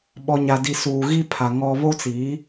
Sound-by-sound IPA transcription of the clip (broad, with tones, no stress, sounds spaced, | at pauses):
ɓ ɔ˨ ɲ a˨ d i˨ s uː˨ ɣ i˦ pʰ a˨ ŋ ɔ˦ β o˦ t͡s i˨˦